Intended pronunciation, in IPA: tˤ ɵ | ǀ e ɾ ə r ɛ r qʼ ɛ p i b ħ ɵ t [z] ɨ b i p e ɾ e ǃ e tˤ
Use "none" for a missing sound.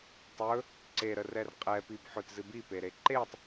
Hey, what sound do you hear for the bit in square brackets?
z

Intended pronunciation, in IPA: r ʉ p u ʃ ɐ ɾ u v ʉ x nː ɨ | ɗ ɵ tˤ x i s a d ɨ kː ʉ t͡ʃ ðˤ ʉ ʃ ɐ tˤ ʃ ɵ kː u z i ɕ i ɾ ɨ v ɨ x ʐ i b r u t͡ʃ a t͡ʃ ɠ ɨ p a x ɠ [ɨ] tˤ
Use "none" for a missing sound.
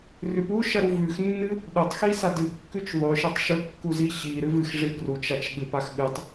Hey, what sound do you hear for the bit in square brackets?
ɨ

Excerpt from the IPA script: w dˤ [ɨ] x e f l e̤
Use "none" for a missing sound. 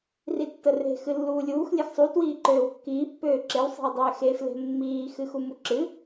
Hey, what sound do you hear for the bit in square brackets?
e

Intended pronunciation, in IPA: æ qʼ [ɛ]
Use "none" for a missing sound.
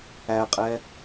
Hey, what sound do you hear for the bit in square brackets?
ɛ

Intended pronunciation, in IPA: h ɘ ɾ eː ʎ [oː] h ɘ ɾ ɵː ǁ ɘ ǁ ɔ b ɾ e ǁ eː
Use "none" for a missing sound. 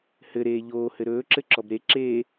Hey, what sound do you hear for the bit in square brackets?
oː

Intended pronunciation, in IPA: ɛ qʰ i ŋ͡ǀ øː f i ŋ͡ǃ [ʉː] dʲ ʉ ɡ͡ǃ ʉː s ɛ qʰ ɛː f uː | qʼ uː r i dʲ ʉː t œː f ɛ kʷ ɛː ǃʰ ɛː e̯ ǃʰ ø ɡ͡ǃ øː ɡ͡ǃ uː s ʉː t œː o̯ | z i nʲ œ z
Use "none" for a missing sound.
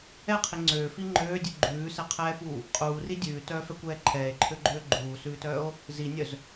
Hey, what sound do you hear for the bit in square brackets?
øː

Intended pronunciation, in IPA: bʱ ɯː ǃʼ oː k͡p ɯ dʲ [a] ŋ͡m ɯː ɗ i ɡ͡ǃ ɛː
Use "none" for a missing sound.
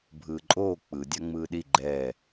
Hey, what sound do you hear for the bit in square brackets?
a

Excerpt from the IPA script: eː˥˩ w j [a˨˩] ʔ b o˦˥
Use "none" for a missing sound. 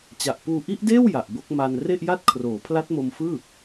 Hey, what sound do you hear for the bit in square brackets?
a˨˩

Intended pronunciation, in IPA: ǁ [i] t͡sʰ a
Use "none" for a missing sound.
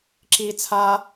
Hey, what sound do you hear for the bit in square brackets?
i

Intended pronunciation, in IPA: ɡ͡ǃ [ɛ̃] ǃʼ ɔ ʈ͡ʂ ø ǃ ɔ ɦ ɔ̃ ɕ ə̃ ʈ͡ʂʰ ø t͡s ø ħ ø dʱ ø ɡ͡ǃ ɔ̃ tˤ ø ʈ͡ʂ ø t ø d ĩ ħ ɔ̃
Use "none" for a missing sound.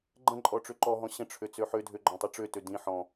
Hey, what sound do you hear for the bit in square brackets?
ə̃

